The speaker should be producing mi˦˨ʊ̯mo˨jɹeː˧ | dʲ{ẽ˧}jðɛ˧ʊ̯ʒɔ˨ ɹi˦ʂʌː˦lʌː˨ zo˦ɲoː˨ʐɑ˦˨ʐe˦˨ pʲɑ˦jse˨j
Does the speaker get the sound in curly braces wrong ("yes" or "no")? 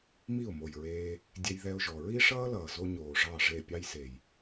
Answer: yes